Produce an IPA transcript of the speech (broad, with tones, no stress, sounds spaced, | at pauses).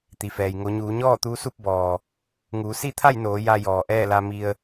t̪ i˩ f ɛː˩ j ŋ o˩˧ ɲ uː˩˧ ɲ ɔː˥˨ t̪ uː˧˥ s u˥˨ p̚ b ɔː˩ | ŋ uː˩˧ s i˥˨ t̪ʰ a˥˨ j n oː˩˧ j a˧ j ɔː˩ ʔ ɛː˥˨ l a˧ m i˧ ə̯